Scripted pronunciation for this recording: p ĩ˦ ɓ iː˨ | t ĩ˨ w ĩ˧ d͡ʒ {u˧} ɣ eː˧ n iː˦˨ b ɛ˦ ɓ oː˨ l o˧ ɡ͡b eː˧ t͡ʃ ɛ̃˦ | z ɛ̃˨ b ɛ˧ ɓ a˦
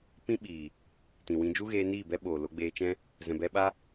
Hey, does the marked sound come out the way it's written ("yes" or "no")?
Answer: no